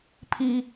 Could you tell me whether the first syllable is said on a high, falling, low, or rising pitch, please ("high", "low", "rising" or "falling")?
high